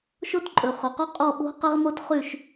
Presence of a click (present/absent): present